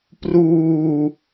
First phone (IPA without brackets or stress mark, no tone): p